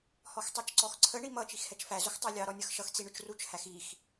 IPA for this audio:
h ɔ x tˤ ɛ t͡ʃ ǀ ɔ x ǀʰ ə ɳ i m ʌ t͡ʃ i x h ɛ t͡ʃ f æ z ʊ x tˤ ə˞ lʲ ɑ ɾ ɔ nʲ ə˞ x ʃ ʌ x t͡s i ɳ ʊ t͡ʃ r u t͡ʃ h æ x i x

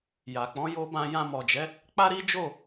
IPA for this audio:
j a˨ k͡p ɔ̃˨˦ j o˧ b ã˧ j ã˧ m ɔ˨ d͡ʒ ɛ˨˦ | k͡p a˦ ɾ i˦ d͡ʒ o˦˨

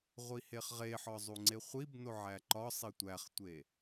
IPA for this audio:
ʁʷ i h e χ ʁ e ħ ɒ zˤ u ŋ͡ǀ e χʷ i b n o ʕ æ ǃ ɒ sˤ i tʷ æ χ tʷ e

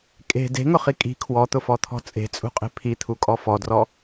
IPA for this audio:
kʼ e̤ d e̤ ŋ ʊ χ i kʼ i̤ kʰ w ɔ t̪ ʊ f ɔ t̪ʰ ɔ̤ t͡sʼ e̤ t͡sʼ ṳ qʼ e̤ pʰ i t̪ʰ u kʼ ɔ f ɔ d r ɔ

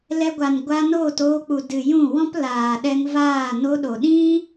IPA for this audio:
l ɛ˧ ɡʷ a˨ n ɡʷ a˧ n oː˦˨ t oː˧ k͡p u˨ d ɨ˨ j ũ˦˨ w ɔ̃˦ p l aː˨ ɗ ɛ˧ ŋ v aː˦˨ n o˧ ɗ o˨ ɗ ĩ˦

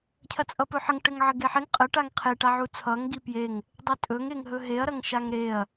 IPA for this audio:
cʰ ɐ t͡sʼ ʌ p ɵ ħ ə ŋ ʈ ɘ ŋ ʕ ɘ ɡ e ħ e ŋ qʼ ə ʈ a ŋ qʰ e ʈ a ʕ u t͡sʰ ʌ ŋ ɡ i p j e ŋ | dˤ ɵ tʼ ɵ ŋ e ŋ ɦ ɵ ɦ e ɐ̯ ɾ ɐ ŋ ʃ a ŋ ɾ e ɐ̯

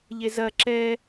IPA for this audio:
ʎ e z ɐ ǁ ɛ

